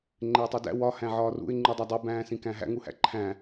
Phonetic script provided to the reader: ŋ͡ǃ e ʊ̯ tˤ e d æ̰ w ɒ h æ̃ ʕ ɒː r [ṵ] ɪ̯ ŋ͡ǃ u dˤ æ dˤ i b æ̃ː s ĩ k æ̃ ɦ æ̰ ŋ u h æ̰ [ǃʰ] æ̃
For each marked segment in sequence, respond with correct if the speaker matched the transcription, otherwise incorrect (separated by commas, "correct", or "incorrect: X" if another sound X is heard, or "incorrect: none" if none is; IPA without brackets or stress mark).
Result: correct, correct